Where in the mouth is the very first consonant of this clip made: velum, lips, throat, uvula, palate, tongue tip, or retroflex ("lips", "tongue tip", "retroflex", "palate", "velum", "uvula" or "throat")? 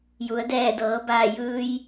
palate